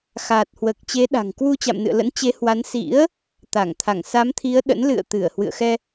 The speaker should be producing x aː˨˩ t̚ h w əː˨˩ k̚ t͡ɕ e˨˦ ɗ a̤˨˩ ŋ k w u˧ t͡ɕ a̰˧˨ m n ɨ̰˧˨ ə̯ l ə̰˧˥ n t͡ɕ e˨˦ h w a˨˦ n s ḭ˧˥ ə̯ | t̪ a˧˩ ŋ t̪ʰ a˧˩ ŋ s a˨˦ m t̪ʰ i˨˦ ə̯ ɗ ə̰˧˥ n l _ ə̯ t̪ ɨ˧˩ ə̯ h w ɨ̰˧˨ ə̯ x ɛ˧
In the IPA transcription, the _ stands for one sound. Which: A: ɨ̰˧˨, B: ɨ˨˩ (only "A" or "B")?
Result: A